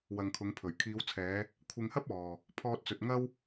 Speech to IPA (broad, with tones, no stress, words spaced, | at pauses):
wɐ˨ŋkʰʊ˨˧ŋpʰɵ˨˩ɥ kʰiː˨˧wt͡sʰɛː˨˧ | kʷʰɪ˧ŋhɐ˥p̚ ɔː˨ | pʰɔː˧t̚t͡sɵ˨t̚ ŋɐ˥w